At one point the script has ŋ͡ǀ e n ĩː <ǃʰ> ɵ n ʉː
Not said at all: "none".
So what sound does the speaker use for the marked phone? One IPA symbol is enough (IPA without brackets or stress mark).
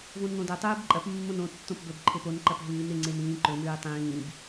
ǃ